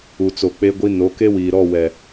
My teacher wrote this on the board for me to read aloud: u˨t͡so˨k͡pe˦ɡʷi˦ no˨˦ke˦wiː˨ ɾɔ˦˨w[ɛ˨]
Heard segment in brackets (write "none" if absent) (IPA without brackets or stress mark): ɛ˨